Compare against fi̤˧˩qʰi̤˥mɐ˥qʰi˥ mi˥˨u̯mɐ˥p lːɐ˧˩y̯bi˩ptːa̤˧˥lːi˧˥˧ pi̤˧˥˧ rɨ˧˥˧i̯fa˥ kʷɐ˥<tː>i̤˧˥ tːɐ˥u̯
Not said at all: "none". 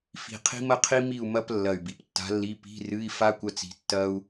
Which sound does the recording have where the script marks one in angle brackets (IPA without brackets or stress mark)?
t͡s